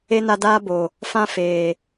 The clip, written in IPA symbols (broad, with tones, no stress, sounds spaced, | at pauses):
e˦ n a˧ d aː˦ b o˨ | f ã˦ f eː˨